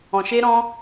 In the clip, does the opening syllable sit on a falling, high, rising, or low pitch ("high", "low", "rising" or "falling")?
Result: low